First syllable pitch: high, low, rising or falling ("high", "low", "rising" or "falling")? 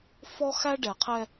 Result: high